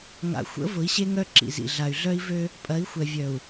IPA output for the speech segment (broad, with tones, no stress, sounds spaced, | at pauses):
ŋ a̰˨ xʷ ə̰˨˦ v ʊ˨˦ i̯ ɕ e˦ ŋ œ˦ ǁ ḭ˨ z ḭ˨ ɮ a˨ y̯ ɮ œ˦ i̯ v ø˦ | pʼ ɐ˨˦ i̯ xʷ ɛ˨ vʲ œ˨ u̯